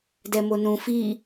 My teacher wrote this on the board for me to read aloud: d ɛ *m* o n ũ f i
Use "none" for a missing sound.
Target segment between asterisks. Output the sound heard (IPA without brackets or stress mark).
m